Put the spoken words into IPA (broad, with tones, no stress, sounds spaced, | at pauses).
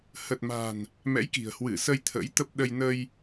h ə˨˩ t̚ m a̤˨˩ n | m ɛ̰˧˥ j k i̤˨˩ ə̯ h w ɨ˧˩ s ə˧ j t̪ʰ ə̰˧˥ j t̪ ə˦˥ p̚ ɗ ə˧ j n ə˧ j